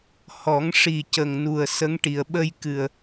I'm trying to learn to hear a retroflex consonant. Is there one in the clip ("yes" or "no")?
yes